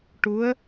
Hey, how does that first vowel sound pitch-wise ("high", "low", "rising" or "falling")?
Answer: rising